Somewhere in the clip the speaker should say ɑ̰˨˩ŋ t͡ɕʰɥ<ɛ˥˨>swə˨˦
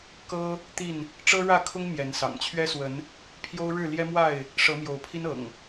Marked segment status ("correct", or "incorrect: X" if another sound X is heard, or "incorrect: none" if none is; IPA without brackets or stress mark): incorrect: ɛ˦